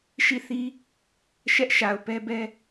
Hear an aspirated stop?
no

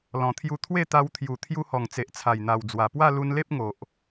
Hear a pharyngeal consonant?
no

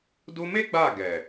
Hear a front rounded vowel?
no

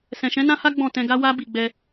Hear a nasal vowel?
yes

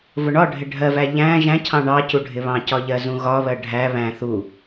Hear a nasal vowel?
yes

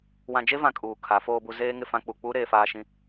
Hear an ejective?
yes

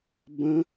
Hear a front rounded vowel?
no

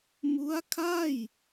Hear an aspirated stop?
yes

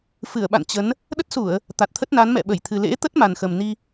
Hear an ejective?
no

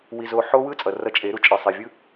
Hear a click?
no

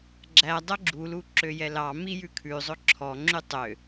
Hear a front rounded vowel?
yes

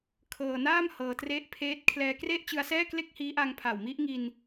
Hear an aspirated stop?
yes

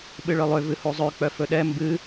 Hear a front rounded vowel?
yes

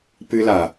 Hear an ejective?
no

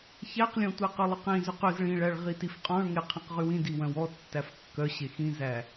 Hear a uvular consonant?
yes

